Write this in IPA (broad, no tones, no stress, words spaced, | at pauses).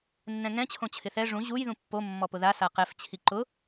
nːɛ̃ŋɛ̃ t͡ɕʰõt͡ɕʰɪθɛ ʐũ ʑuj ðũpːo mːɔpʊða saqɛf t͡ɕʰiǃʊ